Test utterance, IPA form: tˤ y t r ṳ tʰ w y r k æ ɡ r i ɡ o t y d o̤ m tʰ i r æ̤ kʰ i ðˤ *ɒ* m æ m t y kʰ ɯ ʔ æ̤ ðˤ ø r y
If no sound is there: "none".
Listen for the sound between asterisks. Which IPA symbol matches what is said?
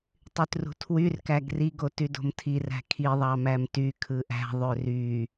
ɑ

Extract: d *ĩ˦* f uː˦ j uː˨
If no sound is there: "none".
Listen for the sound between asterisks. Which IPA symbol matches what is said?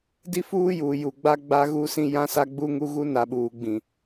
i˦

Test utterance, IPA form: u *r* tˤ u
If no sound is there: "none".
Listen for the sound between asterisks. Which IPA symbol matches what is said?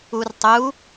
r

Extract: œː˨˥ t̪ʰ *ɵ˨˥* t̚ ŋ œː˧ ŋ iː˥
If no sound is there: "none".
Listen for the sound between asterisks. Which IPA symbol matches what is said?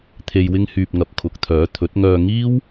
ɵ˨˥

